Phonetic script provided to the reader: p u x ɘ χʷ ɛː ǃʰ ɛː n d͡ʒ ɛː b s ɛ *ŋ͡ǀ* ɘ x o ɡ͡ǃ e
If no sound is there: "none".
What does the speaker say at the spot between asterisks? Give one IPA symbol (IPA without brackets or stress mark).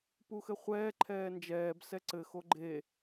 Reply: ǀ